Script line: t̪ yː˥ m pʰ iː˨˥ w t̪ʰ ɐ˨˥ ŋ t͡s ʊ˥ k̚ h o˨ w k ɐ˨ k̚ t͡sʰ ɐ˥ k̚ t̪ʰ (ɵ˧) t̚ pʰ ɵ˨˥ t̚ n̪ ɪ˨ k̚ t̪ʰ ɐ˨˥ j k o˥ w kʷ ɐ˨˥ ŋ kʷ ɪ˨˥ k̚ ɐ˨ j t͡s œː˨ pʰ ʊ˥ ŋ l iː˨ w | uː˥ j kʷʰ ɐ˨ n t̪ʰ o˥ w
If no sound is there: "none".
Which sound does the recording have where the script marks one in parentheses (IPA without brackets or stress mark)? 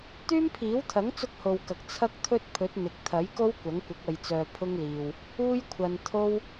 ɵ˥